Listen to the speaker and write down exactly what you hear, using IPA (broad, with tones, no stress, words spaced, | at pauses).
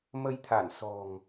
mə˧jt̪ʰa˧˩n sɔ̤˨˩ŋ